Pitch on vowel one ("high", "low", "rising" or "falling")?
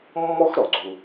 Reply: high